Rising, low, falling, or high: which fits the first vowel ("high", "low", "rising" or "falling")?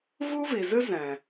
high